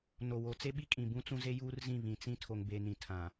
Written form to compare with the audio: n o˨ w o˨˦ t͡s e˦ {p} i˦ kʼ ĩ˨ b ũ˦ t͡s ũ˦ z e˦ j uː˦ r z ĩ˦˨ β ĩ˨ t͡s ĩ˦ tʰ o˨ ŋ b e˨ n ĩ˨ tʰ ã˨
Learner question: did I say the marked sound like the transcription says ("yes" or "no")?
no